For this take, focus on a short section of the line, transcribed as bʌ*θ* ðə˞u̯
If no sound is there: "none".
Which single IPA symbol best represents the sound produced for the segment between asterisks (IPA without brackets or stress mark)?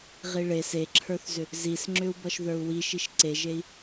ʃ